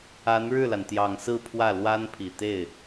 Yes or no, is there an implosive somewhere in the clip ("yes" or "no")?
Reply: no